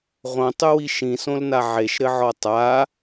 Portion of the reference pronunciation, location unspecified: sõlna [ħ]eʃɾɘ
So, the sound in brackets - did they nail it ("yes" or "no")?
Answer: no